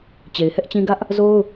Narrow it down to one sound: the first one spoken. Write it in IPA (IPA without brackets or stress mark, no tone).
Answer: t͡ɕ